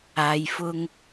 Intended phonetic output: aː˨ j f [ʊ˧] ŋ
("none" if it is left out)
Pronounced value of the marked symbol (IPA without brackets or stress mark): ʊ˧